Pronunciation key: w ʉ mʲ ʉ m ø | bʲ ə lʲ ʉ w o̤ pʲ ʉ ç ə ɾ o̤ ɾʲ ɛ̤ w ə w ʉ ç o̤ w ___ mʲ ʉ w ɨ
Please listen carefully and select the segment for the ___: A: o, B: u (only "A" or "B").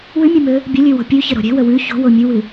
A